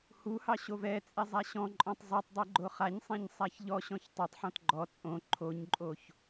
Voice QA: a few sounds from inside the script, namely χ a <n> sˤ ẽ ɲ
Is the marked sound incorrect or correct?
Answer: incorrect